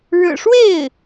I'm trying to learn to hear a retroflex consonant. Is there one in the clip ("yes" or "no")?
yes